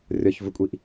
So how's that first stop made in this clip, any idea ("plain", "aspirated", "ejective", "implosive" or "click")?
ejective